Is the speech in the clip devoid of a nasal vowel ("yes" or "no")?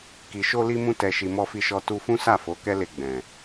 no